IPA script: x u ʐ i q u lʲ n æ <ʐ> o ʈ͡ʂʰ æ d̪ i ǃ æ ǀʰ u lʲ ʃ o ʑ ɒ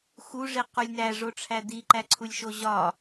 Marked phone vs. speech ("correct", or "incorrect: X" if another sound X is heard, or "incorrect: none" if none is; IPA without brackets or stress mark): correct